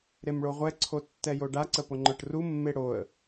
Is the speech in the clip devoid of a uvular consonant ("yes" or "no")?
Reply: no